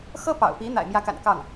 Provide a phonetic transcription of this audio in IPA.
xɤ˥pɑ̰˨˩ʊ̯pi˧˥ n̪a̰˨˩ɪ̯mjä˧˥ka̰˨˩n kɑ˥˩ŋ

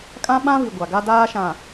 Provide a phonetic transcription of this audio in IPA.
kʼã˦ ɓã˦vi˨ ɡʷa˨ɡa˦daː˦ʃã˨

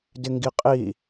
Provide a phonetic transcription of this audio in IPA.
dɪŋɡiqʼi

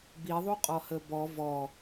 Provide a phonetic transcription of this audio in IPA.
biðˤuqʼɔ həbɔ vɔ

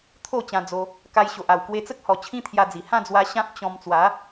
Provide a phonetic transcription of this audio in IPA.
t̪ʰo˥˧t͡ɕã˧d͡zo˧ | ka˧jɕo˨ʔa˨˩w kwe˧t͡sə˦k̚hɔ˨˩ t͡ɕʰĩ˦t̪ʰja˧d͡zi˨˩ hã˥˧d͡zwa˧ ɕã˦p̚ t͡ɕɔ̃˧m t͡swa˨˦

